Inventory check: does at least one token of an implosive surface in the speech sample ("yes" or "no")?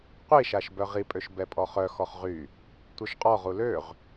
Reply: no